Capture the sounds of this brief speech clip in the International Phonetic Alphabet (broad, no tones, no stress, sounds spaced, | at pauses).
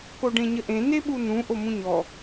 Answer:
k o ɖ ẽ ɲ ə ʔ ẽ n e ɓ u n ũ ʔ o m ũ ɲ ɔ